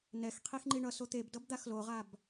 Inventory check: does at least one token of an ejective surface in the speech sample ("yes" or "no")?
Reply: no